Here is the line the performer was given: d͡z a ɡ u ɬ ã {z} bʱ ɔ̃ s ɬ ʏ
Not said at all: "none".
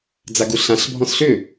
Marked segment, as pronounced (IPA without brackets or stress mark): ɬ